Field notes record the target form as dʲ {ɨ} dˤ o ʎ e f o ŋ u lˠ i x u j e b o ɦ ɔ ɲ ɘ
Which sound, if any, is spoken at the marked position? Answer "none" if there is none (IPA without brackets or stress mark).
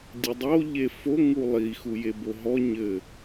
ɨ